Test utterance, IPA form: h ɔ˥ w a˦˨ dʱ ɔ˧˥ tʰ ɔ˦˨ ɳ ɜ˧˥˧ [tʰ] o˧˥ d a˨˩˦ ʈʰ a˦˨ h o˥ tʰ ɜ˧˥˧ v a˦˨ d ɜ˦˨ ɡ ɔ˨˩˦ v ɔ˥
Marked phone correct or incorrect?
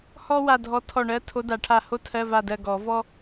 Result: correct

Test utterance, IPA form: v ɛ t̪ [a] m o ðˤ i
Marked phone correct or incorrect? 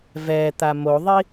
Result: correct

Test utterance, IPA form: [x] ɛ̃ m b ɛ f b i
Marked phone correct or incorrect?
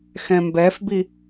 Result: correct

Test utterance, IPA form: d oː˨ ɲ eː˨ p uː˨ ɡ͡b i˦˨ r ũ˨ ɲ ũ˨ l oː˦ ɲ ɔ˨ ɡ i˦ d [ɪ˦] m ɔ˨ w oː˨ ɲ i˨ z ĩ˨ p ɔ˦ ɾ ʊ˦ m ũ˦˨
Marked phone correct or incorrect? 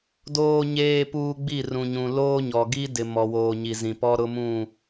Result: incorrect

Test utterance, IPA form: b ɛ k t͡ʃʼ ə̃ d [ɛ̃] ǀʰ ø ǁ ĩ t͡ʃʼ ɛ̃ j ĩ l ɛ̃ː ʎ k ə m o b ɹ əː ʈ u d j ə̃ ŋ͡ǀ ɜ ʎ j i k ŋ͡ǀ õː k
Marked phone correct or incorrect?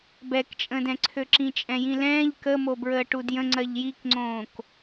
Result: correct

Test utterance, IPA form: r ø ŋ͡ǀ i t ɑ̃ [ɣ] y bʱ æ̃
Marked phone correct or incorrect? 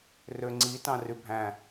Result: incorrect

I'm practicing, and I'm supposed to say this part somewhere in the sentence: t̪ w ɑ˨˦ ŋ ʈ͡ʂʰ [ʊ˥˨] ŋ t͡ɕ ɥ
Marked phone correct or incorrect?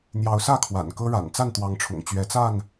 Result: incorrect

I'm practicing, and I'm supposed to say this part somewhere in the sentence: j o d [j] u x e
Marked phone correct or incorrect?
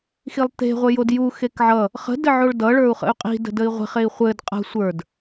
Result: correct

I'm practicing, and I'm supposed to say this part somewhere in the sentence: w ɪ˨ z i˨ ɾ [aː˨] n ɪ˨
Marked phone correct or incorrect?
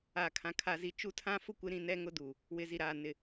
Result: correct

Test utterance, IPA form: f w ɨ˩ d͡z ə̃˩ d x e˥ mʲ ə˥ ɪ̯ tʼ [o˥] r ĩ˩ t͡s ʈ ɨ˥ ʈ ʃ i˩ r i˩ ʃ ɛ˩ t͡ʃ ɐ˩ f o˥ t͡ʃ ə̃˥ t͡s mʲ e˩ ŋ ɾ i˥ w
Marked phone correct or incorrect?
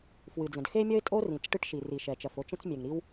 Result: correct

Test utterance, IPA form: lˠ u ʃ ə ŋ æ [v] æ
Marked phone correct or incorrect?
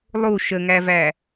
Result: correct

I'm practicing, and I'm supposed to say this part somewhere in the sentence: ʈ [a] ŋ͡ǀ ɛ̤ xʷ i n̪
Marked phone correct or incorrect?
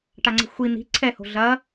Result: correct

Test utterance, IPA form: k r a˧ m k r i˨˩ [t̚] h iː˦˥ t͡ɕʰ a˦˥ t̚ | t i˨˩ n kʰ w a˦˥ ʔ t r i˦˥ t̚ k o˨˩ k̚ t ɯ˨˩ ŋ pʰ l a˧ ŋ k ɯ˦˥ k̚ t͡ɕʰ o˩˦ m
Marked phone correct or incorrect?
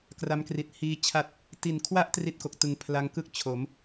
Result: correct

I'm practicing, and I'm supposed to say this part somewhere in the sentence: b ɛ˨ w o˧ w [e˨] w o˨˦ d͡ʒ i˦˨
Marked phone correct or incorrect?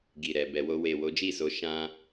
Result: correct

